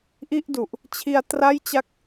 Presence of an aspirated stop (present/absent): present